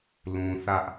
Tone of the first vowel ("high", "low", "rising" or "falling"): low